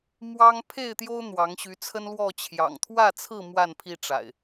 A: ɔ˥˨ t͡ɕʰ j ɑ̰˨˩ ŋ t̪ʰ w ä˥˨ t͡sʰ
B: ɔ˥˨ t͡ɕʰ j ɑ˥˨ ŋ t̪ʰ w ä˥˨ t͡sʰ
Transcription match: A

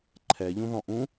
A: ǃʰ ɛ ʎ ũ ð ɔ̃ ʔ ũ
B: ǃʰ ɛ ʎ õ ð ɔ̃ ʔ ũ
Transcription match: A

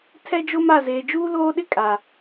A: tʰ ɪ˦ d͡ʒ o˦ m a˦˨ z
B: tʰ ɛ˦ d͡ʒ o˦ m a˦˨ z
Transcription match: B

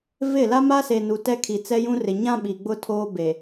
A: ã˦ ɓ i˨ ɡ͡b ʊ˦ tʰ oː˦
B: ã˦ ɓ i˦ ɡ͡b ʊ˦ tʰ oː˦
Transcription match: A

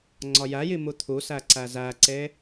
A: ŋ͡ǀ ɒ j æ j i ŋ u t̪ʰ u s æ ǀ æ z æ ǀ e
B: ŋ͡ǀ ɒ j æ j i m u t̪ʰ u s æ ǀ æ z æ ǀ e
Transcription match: B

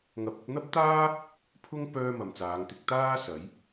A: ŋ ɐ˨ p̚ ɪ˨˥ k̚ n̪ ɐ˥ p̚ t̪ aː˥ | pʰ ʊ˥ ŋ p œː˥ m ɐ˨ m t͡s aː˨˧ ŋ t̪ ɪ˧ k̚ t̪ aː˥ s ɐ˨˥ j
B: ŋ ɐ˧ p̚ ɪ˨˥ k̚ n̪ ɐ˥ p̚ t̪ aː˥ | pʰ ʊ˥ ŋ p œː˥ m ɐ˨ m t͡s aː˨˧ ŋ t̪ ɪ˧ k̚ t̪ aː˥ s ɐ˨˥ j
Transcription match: B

